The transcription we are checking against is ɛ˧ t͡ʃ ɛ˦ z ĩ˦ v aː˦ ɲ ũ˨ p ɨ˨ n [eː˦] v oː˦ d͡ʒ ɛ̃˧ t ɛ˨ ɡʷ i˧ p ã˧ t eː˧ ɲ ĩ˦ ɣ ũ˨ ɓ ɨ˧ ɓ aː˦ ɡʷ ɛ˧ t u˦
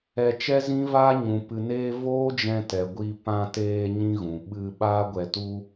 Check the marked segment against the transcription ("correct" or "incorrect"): incorrect